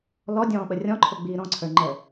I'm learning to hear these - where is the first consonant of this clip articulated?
tongue tip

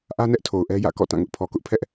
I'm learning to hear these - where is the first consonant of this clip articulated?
throat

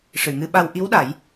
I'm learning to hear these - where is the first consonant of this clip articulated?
retroflex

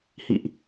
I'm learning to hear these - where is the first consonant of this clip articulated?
throat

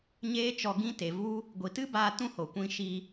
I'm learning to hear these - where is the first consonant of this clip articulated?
palate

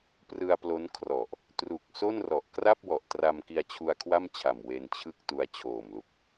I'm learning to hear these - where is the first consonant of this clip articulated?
lips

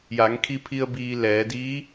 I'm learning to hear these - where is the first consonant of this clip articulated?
palate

